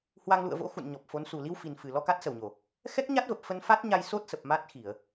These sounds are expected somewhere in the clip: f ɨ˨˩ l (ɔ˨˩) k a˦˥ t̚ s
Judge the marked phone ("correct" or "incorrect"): incorrect